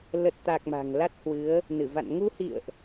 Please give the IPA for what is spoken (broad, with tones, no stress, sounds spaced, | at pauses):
l ə˨˩ t̚ t̪ a˨˩ k̚ m a̤˨˩ ŋ l a˦˥ t̚ h w ɨ˨˦ ə̯ | n ɨ˧˩ v a̰˧˨ n ŋ u˧ h ḭ˧˨ ə̯ ʔ